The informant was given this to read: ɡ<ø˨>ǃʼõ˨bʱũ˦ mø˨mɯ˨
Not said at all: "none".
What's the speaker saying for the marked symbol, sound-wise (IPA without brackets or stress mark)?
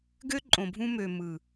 ø˦